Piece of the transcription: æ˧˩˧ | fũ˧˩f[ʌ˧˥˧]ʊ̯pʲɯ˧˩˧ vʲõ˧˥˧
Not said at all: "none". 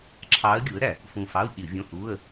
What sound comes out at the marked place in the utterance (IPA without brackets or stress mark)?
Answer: ɑ˧˥˧